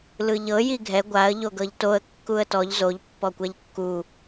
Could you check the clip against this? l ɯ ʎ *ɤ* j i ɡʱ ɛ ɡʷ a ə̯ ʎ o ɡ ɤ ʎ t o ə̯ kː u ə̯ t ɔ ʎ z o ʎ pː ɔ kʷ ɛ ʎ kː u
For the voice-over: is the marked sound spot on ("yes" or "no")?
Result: yes